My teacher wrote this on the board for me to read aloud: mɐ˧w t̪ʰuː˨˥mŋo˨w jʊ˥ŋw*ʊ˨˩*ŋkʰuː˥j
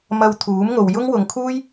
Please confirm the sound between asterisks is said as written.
no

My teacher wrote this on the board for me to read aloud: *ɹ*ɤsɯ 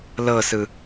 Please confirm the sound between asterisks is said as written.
no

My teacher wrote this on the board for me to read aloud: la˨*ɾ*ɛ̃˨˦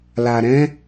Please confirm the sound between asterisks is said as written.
yes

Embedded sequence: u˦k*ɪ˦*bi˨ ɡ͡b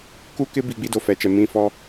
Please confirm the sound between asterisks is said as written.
yes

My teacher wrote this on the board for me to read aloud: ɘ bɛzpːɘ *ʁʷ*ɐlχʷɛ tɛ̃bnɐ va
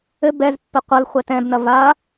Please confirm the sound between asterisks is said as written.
no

